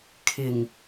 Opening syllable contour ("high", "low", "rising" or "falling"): low